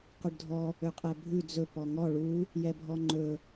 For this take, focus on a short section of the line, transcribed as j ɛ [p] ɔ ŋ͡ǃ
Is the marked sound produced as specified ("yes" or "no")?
no